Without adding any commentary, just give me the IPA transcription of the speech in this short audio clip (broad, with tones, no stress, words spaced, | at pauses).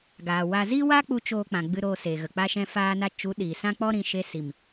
ɡaː˨wa˧ zi˦wa˦k͡pu˧ t͡ʃoː˧k͡pã˨ɡ͡bɨ˧ ɾoː˧seː˨ɣə˨ k͡pa˦ʃɛ̃˦faː˦na˦ t͡ʃu˨˦ ɗiː˨sã˦k͡pɔ˦ɾĩ˧ ʃe˧si˨m